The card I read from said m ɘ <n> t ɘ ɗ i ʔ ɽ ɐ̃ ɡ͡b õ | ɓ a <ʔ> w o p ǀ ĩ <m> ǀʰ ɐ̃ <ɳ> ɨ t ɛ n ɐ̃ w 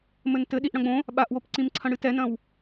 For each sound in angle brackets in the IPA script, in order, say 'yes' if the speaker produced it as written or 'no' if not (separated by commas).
yes, yes, yes, no